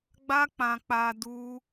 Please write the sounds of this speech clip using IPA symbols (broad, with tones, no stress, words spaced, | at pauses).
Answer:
ɡ͡ba˦k͡pã˧k͡pa˧ du˦